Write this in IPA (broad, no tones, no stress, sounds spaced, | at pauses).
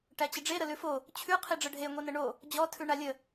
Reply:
ʈ æ t͡ɕ ə ɖ͡ʐ e ɾ ə l ʉ f o | t͡ɕʰ ʉ qʰ i ɖ͡ʐ ə ɖʱ e ŋʷ i n ə ɳ o | d͡ʑ ɔ tʰ ʉ ɳ a lʲ ə